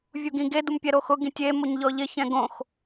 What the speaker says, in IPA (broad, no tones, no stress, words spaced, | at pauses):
vʲuɡĩɡe dumpʲɛɾoxʊ ɡĩtʲemoɲ ʎɔʎɪ çɛ̃ɡõx